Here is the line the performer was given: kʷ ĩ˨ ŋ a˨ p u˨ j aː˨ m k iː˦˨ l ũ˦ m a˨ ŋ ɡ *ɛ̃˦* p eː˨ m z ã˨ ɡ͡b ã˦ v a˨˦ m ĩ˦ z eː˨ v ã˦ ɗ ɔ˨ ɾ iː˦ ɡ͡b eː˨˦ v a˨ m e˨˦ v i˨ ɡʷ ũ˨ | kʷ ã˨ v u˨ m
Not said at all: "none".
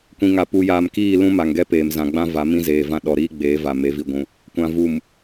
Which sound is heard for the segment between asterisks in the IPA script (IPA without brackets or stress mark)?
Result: ɛ˦